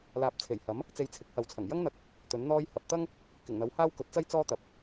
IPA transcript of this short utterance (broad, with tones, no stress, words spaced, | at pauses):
laː˨p̚t͡sʰe˨˩jhɐ˨˥m | t͡se˧jt͡sʰɪ˨˥k̚hɐ˨wt͡sʰɐ˨˩ŋ jɐ˥ŋn̪ɐ˧k̚ | t̪ɵ˨˥nn̪ɔː˥j hɐ˨p̚t̪ɐ˥ŋ | kɪ˨˩ŋn̪ɐ˨˥whaː˥w kɵ˨˥t̚t͡sɐ˥j t͡sɔː˥t̪ɐ˨˥p̚